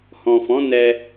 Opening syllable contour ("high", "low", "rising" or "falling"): low